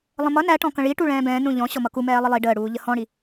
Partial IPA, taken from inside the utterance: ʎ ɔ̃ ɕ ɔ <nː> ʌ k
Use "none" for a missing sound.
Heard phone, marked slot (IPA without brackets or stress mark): m